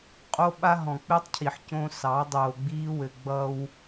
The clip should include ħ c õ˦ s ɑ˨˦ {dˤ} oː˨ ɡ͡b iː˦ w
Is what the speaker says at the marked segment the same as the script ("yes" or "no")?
yes